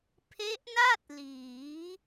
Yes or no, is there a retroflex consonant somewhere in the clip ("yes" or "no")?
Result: no